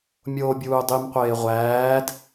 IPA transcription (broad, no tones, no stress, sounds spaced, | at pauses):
mʲ oː bʲ uː dˤ i m qʷ eː ʁʷ æː d